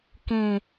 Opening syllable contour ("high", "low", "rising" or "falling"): low